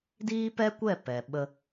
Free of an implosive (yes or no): no